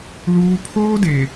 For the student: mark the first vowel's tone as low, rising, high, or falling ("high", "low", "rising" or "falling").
high